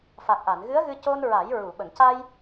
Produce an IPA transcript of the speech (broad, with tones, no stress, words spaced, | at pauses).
fa˨˩k̚ʔa˨˩˨nɣɨ˧˥ə̯ɣɨ˧ co˧nɹa˨˩˦j ɹu˨˩˨ɓə˨˩˨ŋca˧j